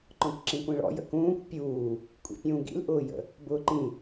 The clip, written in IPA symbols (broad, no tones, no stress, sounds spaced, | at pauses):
ǃ ɔ̃ kʷ ǁ ĩ kʷ ĩ ɭ ɔ̰ j ə̰ k ũː kʷ pʲ uː | kʷʼ ḭ pʲ ũː ɡ ḭ l ʔ ʊː j ə̰ | b ʊː ǃ ĩ